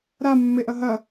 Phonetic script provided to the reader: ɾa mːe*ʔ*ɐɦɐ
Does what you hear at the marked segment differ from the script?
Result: no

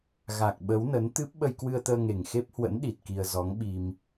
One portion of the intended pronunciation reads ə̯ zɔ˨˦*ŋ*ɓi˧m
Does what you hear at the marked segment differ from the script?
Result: no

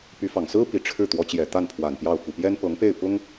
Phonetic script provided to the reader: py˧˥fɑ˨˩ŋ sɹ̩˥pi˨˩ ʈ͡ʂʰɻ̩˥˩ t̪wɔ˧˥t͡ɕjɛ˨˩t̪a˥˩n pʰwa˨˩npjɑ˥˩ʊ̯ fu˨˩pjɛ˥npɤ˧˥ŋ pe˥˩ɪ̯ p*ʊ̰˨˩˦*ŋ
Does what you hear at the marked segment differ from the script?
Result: yes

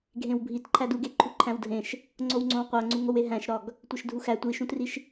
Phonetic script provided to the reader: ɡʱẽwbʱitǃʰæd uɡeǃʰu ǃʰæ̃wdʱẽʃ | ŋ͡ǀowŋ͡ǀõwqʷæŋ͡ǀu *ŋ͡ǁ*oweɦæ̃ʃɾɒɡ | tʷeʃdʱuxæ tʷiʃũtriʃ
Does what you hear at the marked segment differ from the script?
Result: yes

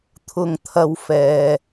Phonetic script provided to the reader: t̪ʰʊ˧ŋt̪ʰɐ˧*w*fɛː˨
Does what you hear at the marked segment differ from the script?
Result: no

